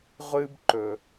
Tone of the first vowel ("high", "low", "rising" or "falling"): high